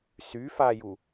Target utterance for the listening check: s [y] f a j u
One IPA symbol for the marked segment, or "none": y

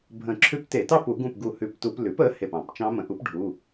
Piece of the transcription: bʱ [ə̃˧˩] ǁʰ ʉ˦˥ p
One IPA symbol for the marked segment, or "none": ə̃˧˩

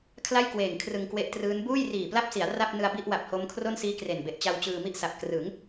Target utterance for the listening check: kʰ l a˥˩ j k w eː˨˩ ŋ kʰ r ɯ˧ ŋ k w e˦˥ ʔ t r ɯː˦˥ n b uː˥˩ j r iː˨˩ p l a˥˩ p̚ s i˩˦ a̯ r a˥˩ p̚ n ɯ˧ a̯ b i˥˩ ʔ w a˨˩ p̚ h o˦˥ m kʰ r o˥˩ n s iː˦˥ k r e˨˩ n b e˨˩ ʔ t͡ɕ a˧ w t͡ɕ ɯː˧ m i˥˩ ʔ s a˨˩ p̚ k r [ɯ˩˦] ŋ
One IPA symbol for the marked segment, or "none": ɯ˩˦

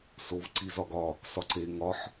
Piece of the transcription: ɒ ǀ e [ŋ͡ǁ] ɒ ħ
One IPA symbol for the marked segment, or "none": ŋ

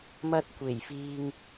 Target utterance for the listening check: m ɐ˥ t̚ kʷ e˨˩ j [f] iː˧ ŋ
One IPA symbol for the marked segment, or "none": f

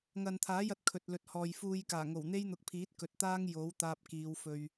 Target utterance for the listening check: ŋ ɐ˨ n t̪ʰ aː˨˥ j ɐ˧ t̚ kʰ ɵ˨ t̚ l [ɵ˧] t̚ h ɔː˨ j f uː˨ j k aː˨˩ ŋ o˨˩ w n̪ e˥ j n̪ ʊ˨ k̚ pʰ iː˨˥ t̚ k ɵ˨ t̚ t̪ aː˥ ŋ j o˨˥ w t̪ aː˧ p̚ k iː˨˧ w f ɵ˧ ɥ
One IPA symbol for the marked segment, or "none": ɵ˨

